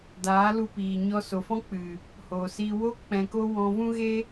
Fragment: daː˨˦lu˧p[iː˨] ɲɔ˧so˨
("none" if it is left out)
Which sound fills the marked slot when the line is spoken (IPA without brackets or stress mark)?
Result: iː˨